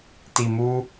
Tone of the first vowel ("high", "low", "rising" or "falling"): low